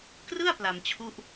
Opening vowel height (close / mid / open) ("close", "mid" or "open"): close